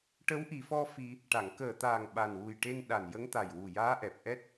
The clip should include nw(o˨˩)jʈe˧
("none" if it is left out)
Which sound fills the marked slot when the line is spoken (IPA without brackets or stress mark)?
u˨˩